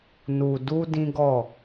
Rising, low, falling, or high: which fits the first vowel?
low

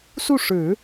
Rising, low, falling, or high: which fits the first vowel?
falling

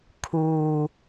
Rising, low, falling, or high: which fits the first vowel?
low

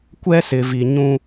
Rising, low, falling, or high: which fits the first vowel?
high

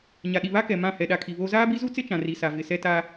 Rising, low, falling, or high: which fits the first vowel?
low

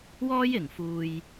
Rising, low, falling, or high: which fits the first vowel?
high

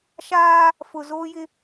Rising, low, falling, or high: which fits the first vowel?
high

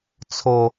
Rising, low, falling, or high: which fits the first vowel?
high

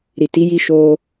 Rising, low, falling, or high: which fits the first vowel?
low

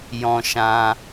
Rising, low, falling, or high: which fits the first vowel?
high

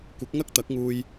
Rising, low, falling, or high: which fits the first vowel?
rising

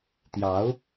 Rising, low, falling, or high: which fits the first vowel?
rising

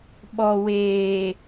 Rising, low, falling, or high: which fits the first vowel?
low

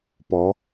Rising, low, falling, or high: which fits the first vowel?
rising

